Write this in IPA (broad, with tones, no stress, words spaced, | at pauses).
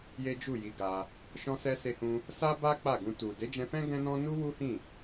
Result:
je˦d͡ʒu˦˨ji˧ɡa˧ | ʃɔ̃˧sɛ˧ se˧hũ˧ | sa˦ba˦ k͡pa˦˨ɡũ˧tu˨ de˨˦d͡ʒɛ̃˧fɛ̃˦ ɡɛ̃˦nɔ̃˦ nu˦wu˦hĩ˦˨